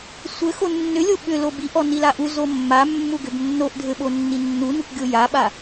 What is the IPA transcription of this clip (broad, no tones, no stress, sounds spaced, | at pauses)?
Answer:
sʷ ɘ x o nː ʏ lʲ o ɓ ʏ l o b i ʔ ɔ n i l a ʔ u z o mː a mː u ɡ ʏ b nː o ʔ dʱ ɘ ɓ o nː i nː u n u kʷ ɡʲ o j a ɓ a